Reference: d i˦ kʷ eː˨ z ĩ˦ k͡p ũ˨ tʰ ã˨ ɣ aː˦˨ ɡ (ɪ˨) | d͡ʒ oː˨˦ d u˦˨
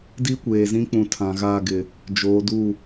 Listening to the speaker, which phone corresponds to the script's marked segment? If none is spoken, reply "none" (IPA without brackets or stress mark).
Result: ɪ˨